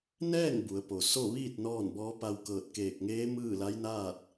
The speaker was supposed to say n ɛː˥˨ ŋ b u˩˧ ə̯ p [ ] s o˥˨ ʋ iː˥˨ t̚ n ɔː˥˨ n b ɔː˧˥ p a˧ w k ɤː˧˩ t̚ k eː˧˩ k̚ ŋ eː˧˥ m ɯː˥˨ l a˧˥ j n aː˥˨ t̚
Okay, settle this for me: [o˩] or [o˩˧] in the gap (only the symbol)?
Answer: o˩